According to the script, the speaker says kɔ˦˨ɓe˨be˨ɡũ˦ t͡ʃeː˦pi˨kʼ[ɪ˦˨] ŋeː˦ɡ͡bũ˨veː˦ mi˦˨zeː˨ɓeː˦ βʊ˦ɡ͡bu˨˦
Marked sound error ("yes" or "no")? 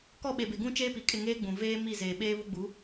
no